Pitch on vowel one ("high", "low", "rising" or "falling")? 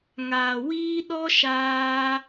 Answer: low